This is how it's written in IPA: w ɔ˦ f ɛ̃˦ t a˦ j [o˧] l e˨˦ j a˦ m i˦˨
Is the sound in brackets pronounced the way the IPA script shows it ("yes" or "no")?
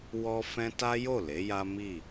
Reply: no